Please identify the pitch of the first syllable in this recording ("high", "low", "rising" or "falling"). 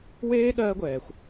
high